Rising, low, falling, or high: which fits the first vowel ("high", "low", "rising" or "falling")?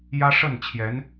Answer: high